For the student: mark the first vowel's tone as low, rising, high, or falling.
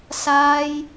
high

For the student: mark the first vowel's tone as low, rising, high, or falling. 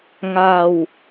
low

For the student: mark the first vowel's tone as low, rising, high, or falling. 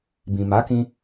low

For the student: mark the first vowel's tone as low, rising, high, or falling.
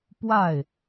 falling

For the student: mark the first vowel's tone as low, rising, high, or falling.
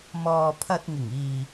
low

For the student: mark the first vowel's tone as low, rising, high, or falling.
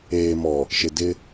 low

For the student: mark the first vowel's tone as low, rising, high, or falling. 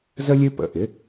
high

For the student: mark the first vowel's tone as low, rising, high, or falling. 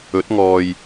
rising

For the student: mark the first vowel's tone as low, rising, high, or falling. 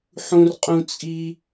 high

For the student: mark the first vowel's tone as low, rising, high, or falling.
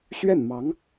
falling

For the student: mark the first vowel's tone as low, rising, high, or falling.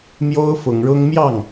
high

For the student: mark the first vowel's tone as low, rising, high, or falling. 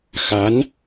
rising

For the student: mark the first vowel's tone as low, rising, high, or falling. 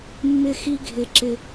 high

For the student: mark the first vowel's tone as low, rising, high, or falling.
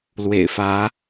low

